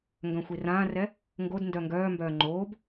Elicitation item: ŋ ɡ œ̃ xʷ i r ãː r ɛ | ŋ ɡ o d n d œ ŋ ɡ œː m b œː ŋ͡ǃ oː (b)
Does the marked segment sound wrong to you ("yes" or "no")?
no